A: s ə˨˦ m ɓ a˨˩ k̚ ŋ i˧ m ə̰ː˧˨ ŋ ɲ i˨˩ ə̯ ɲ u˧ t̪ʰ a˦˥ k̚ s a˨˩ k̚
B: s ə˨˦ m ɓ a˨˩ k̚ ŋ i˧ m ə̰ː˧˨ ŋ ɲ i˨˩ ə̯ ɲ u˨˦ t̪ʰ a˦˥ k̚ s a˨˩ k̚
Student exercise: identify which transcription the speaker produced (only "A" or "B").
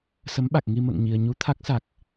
A